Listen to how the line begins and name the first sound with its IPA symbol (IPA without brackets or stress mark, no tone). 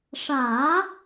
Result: ʂ